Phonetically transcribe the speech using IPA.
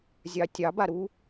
zʲ ɑ tʲ ɑ b a ɾ u

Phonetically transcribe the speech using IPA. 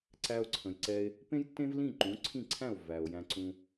ǀ æ˧ o̯ ǀʰ ə̃˩ j ǀ ɛ˧ e̯ | p ẽ˥ j tː ẽ˥ v l ĩ˥˩ ǃ ũ˩˥ ǀʰ ĩ˥˩ ǀʰ æ̃˥˩ o̯ v æ˩ o̯ j æ̃˧ ǀ ũ˧

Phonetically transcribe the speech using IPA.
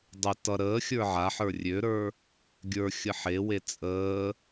dˤ ɪ t ʌ ɾ əː xʲ ə˞ ʕ a ħ ə˞ rʲ ø ɾ ə˞ | ɡʲ ə˞ xʲ ə ħ e w e t͡sʼ əː

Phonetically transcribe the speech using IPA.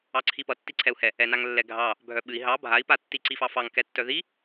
ɑ ǀʰ i p ʌ tː i ǀʰ ɛ u̯ h ɛ | ɛ n a ŋ lː ɛ ɡʱ ɑ | bʱ œ ɓ ɨ i̯ ɦ ɑ bʱ a i̯ p a tː i ǀ i f ɑ f ɑ ŋ k ɛ tː œ ð i

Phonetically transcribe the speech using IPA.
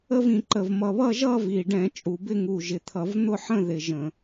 ə˥˧ v ĩ˨˩ ǃ ə˨˩ v m ʌ˨˩ β ʌ˥˧ ʒ ʌ˥˧ v i˨˩ ɖ ɛ̃˧˩˧ t͡ʃʼ u˨˩ b ɪ˥˧ ŋ u˨˩ ʒ ɪ˨˩ t̪ʰ ʌ˧˩˧ v n̪ ʊ˥˧ ħ ə̃˥˧ ð ɪ˨˩ ʒ ə̃˧˩˧

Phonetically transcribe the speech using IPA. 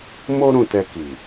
m o˦ ɾ ũ˧ t ɛ˧ k i˨

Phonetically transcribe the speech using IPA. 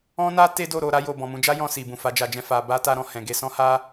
ɔ̃˦ n a˦ t e˦ d o˦˨ ɾ o˧ ɾ a˦ j o˧ b ɔ̃˨ m ũ˨˦ d͡ʒ a˦ j ɔ̃˧ s i˨ b ũ˨ f a˨˦ d͡ʒ a˧ d͡ʒ ɛ̃˦ f a˧ b a˦ t a˦ ɾ ɔ̃˧ h ɛ̃˨ ɡ e˧ s ɔ̃˦ h a˦

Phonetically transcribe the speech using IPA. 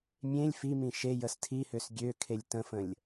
mʲ ẽ lʲ f i m ĩ ʃ e j ə s tʰ i h ø s ɡʲ ø kʰ e lʲ t ə̃ f ə̃ lʲ

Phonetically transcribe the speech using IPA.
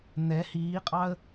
n̪ ɛ h iː qʼ ɑ ə̯

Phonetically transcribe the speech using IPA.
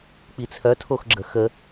k͡p i t͡sʰ œ tʰ o x ɡ͡ǁ ə x ə

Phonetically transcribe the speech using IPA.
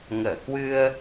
ŋ əː˧˩ k w ɨ˧ ə̯

